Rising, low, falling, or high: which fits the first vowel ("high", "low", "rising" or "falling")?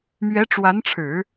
rising